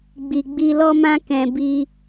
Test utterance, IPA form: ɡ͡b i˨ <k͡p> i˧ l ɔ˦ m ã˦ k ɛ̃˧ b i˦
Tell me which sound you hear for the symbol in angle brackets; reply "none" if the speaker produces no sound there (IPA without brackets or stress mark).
ɡ͡b